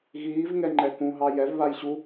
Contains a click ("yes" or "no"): yes